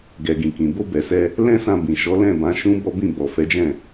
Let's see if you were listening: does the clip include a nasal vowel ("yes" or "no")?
yes